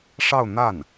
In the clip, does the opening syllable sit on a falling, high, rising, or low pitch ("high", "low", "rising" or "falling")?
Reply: falling